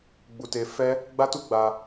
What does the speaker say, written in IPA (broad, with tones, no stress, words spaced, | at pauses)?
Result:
ɡ͡bu˧te˧ fɛ˦ | ɡ͡ba˦tu˦ ɡ͡ba˧